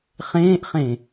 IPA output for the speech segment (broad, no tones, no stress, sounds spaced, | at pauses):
χ ẽː ʔ χ ẽ